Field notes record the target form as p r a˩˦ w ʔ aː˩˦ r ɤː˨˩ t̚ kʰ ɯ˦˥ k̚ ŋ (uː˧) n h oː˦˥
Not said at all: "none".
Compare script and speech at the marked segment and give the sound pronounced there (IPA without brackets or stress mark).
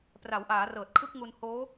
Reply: u˧